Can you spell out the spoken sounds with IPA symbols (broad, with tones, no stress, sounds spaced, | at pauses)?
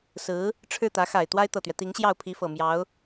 s ɹ̩˧˥ | ʈ͡ʂʰ ɻ̩˥˩ t̪ ä˧˥ x a˨˩ ɪ̯ t̪ w a˥ ɪ̯ t̪ ɤ˨˩ t̪ ɥ ɛ˦ t̪ i˧˥ ŋ ɕ j ɑ˥˩ ʊ̯ pʰ i˧˥ f ɤ˨˩ m j ɑ˧˥ ʊ̯